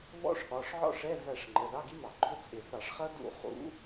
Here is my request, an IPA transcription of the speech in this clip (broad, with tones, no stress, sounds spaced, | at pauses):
β ɔ̰˦˥ ʂ ɠ ɒ˩˧˩ ʂ ʕ ɔ̰˥˩ ʂ ɛ˧˥˧ v æ˥˩ ʂ ŋ͡ǃ ə˩˧˩ ð ɑ˧˥˧ ɡ i˦˥ m ɑ˧˩˧ ɡ͡ǃ ʊ˧˥˧ t͡sʼ ɪ˧˩˧ θ ɑ˧˩˧ ʂ χ ʌ˦˥ d ṵ˧˩˧ χ ṵ˨˦